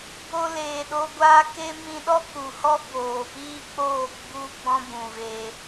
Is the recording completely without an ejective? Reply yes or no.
yes